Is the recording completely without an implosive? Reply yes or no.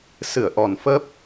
yes